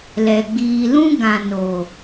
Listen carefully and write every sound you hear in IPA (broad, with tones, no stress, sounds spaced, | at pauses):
l ɛ˨ ɡ͡b iː˨ l ũ˦ ɡ ã˨ n o˨